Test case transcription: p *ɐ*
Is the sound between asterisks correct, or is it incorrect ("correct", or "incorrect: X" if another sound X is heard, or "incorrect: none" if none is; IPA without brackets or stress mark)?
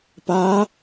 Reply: incorrect: a